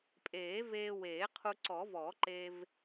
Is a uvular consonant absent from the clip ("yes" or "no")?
no